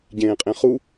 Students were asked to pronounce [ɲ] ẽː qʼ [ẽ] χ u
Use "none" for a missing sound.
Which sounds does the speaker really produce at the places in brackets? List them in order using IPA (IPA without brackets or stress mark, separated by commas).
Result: ɟ, ẽ